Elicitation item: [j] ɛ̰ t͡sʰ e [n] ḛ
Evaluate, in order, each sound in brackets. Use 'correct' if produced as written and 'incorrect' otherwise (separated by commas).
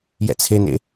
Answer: correct, correct